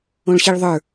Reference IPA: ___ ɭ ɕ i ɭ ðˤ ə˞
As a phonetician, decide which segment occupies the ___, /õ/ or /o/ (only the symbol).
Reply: õ